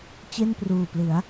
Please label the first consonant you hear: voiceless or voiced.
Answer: voiceless